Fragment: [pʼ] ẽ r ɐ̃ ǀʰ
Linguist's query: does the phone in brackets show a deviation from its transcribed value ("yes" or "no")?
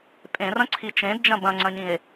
no